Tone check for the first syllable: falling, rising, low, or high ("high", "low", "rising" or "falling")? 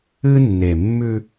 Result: high